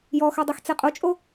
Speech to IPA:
jɔxœdˤixt͡se qʼot͡ʃʼo

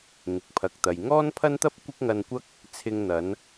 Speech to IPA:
ŋɪ˨˥k̚pʰɐ˨k̚t̪ɐ˨j ŋɔː˥npʰɐ˥nt̪ɐ˥p̚ kʷɪ˥k̚ŋɐ˧nkʷɐ˥k̚ | t͡sʰɪ˧ŋn̪ɐ˨˧n

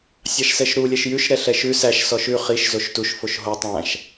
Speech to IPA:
sʲɑʃsɛʃɾu lʲɛʃjʉʃ ɾɛɬɛʃʉ sæʃ sɔʃʉ χiʃ zoʃtuʃ foʃɦo tˤæ̃ʃ

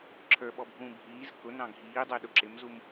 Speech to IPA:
ǁʰə˞ɓɔbʱũː bʱiːz kʊnɑ̃ ɡʱiːdˤə˞ɗʊ ǁɪmzum

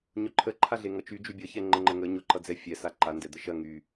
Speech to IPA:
ɲʊǃʰəǃʰaɮe ŋʌt͡ʃy d͡ʒybʲʌ çɛŋ͡ǃəŋ͡ǃəŋə ɲʊǃʌd͡zɛ fʲɛ saǃa ndɛd̪əʃɐ ŋy

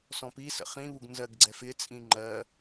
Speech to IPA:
sɔ̃pi sə̰χĩβuɡ nzɜɡɡ͡ǀɛfɪt͡sʼĩ ŋ͡ǃɜ

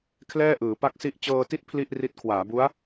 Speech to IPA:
kʰlɛː˥˩ʔɯː˩˦pa˥˩k̚si˥˩ʔ t͡ɕɤː˧ti˦˥t̚ pʰli˥˩ʔri˦˥t̚ kʰwaː˩˦bu˦˥a̯

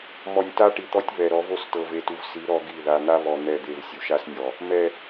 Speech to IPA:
mɔ˨nʲta˦ ʈi˨t̪ɔ˦tʲ βɛ˨ɾɔ˨˦ vo˦˨stɤ˨ve˨tu˨v si˨˦ ɾɔ˦ɡi˦˨ ða˨n̪a˦βɔ˨ n̪ɛ˦˨d̪e˦˨v sʲu˨ʃa˦snʲɔ˨ | mɛ˨

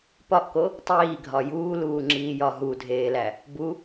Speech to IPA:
pɒʔko | tˤiːɡʱɒ juːluːŋ͡ǁiːjɒ ɦudʱeːlæ | bu

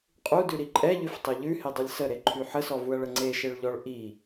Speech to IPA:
qʼudʉɾi ǃʼɛʎʉftˤɛ ʎʉhedˤulʲ səɾeǃʰy ħəsɔvuɐ̯ɭə ŋ͡ǀeʃeɭʎɔɭ ʔi

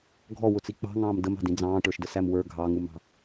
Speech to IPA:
ɡʱɔwʊt͡si k͡pɑ̤ŋɑ̃ːm dəmɑ̤dĩ d͡zɑ̃ːʈə˞ʃdəsæm wə˞ ɡʱɑŋumɑ̤

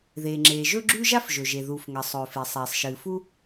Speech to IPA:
ðeː˩ ŋ͡ǁeː˩ʒɵ˥ɡ͡ǁʉ˥ ʒa˥fʒɵ˩ʒe˩ ðu˩f ŋɐ˩sˤɵː˩fe˩ sˤeː˩sˤʃɨː˩ fu˥

